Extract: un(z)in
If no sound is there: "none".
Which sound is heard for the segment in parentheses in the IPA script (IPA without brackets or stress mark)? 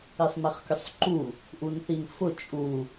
θ